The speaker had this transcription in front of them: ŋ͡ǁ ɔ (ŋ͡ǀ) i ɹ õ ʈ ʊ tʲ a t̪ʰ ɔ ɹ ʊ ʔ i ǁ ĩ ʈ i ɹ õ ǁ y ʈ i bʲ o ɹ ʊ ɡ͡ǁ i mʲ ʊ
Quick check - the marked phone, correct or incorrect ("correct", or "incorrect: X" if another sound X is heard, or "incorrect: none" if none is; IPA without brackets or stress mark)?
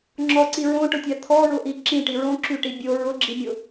incorrect: ǀ